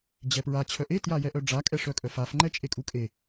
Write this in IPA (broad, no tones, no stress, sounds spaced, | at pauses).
d͡ʑ ɛ p ɹ a t͡ɕʰ œ ʔ e t j a j ɛ ʔ œ ɖ͡ʐ a kʼ ɛ ʂ œ kʼ œ f a f ŋ͡ǃ ɛ t͡ʃʼ e kʼ u kʼ e